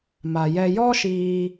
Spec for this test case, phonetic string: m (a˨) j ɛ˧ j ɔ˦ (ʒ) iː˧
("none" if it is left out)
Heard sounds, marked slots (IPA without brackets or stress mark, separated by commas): a˨, ʃ